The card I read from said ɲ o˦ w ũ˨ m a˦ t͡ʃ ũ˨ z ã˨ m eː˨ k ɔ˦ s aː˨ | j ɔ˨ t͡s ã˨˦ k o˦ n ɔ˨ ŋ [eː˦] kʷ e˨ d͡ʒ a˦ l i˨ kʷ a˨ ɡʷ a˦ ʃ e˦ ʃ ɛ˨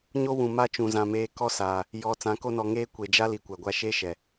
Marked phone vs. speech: correct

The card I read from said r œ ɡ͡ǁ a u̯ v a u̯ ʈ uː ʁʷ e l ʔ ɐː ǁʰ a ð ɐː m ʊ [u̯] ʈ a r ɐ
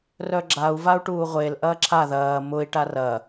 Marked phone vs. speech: incorrect: i̯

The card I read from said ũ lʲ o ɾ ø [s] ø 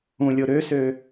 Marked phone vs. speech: correct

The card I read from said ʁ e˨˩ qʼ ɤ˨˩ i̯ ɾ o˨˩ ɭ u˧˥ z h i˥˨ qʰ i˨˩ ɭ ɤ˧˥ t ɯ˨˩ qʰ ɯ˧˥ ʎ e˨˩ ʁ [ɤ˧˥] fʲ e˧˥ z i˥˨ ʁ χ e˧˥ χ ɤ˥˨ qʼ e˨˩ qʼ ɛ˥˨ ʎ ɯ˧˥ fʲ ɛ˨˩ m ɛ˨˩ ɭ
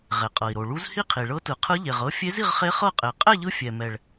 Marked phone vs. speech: correct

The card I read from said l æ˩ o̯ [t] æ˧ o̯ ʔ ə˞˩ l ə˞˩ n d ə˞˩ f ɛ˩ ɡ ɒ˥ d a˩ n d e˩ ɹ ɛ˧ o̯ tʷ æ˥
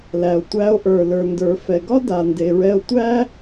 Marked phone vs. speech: incorrect: tʷ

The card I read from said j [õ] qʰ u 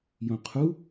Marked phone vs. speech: correct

